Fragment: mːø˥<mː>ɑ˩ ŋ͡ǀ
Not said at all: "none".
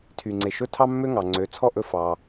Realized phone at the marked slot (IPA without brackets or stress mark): ŋ